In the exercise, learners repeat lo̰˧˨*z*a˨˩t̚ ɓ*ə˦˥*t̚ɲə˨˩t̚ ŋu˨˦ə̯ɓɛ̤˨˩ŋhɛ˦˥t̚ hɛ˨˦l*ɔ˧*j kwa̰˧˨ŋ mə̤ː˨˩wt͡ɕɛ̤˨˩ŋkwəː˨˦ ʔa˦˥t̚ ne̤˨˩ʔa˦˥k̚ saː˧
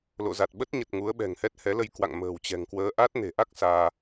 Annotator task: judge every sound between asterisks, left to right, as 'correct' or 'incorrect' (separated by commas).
correct, correct, incorrect